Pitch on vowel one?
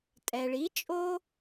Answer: low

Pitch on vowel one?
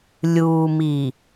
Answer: low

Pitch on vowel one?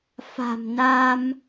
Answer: low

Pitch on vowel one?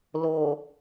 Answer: low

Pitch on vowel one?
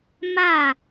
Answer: falling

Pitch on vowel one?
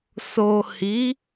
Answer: low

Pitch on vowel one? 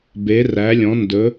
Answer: rising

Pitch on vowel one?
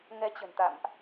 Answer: rising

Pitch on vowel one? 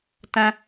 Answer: high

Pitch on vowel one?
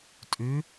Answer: rising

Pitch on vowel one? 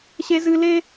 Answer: high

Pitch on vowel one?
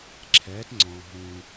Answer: rising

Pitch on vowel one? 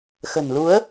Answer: low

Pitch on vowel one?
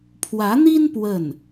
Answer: rising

